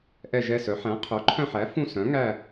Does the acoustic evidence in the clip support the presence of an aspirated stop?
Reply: yes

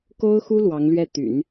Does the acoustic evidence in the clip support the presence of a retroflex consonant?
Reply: no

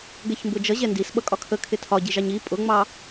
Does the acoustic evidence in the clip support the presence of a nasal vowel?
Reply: no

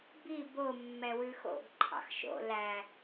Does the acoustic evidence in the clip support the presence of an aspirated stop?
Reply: yes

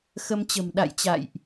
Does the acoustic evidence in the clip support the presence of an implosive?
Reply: yes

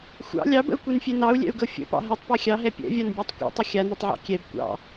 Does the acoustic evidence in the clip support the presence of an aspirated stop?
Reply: no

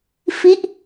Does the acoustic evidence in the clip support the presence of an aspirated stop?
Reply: no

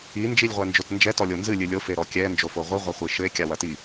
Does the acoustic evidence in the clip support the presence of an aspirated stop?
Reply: no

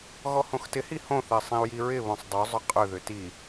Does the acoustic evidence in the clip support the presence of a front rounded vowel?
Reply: yes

